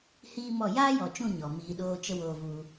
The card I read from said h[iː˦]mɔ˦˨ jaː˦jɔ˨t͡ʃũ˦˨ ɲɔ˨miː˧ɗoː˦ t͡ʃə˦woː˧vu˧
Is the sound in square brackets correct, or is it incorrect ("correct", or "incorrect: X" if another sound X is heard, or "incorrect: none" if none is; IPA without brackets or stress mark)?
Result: correct